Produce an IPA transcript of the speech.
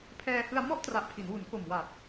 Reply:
pʰɛː˧hɯ˧a̯ mɔ˥˩ʔtra˨˩ʔ pʰi˩˦nwu˩˦nko˨˩mwa˨˩t̚

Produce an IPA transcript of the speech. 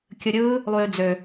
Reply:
kʲɯɾʲɯː | lˠyːd͡zø

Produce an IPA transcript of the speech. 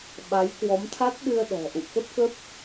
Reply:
ɓa˨˦jkwɔ˨˦mt̪ʰa˦˥t̚ɗɨ˧ə̯ ɗɔ̤˨˩ʔṵ˧˨kə˦˥p̚kə˦˥p̚

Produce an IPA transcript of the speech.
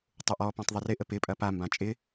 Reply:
tˤʊʔɔpɔ̃tˤ ðˤɪrɪʔə pɪpʼɐ pambã t͡ʃʼɪ

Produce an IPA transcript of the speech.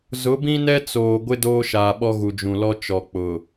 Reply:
zʊ˨˦bĩ˦nɛ˦ t͡soː˨ ɡʷɪ˦ doː˦ʃaː˨ɓɔ˦ɣu˨ d͡ʒũ˨lɔ˦ t͡ʃɔ˨k͡pʊ˨

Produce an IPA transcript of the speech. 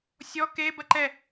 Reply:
sʲɔ kebɐ ǃɛ

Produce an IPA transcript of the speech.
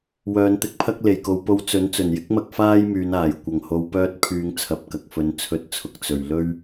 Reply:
wœː˨˧nt̪ɪ˧k̚pʰɐ˥k̚ le˨˩jko˨˧w po˧wt͡sɵ˨˥n t͡sɵ˨˩njɪ˥k̚mɐ˧k̚ faː˥jmyː˨˧naː˨˩j kʷɐ˨˩ŋho˨˧wpœː˧t̚pʰyː˨ŋ t͡sʰɐ˨p̚kɐ˨k̚fɵ˨˧n t͡sʰɵ˧t̚t͡sʰʊ˨k̚ t͡sɵ˨ɥ lɵ˥ɥ

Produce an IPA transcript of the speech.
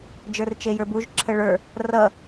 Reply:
d͡ʒə˞rt͡ʃejə˞buʒ ǁʰəɭə˞ | rʌ

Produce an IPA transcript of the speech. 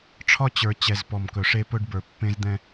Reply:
ʈ͡ʂʰɒ˦t͡ɕə˞˨ t͡ɕɛ˨z pɔ˨mkɵ˨ʂe˦ pɵ˦ɖbə˞˨pːẽ˦zd̪ɛ̃˦

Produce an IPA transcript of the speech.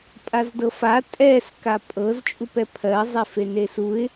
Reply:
pʼazdɤfa tʼɛs kapʼɤz t͡ʃʼupɛpʰɜ zˤɛfenesuɪ̯

